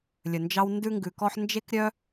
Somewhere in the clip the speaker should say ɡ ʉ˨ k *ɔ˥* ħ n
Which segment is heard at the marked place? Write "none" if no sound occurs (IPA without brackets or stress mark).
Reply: ɔ˥